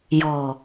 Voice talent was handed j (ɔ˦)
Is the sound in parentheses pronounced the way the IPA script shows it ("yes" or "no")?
no